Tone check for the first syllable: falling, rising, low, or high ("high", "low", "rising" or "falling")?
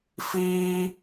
high